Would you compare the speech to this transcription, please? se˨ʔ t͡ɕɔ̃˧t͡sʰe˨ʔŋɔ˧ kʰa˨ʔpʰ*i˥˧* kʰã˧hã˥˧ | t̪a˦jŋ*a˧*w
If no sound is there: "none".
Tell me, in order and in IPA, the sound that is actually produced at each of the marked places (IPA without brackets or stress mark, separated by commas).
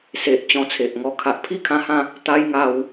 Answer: i˥˧, a˧